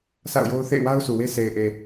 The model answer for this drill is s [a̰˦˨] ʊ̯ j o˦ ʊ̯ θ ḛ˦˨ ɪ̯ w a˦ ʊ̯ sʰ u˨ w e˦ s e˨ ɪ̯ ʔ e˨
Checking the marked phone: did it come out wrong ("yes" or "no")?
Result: no